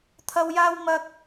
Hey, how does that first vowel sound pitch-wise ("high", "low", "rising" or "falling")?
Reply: high